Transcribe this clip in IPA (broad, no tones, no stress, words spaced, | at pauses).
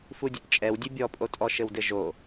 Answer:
fudʲɘpt͡ʃʼɛw dʲɨbʲɔpʼotʼɔ ʃɘwdɘʒo